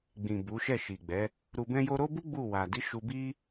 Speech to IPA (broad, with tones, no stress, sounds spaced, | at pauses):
ɡ͡b ĩ˨ b u˨˦ ʃ ɛ˦˨ ʃ i˨ ɡ͡b ɛ˨˦ | ɾ u˧ b ɛ̃˦ j o˦ ɾ o˦ b u˦ ɡ͡b u˦˨ w a˨ d i˨˦ ʃ u˧ b i˦